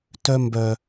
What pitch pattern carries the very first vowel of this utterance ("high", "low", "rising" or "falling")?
high